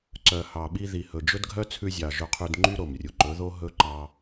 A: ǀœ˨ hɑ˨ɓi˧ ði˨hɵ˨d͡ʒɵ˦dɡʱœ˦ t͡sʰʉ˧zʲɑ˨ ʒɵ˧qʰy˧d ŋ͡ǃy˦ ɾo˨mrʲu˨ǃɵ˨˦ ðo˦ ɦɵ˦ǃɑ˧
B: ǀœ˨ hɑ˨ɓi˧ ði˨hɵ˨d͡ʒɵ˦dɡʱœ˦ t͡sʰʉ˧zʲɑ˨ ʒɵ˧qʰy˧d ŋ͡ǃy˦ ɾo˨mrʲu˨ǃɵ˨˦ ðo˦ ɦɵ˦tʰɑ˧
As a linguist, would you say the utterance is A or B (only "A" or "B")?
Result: A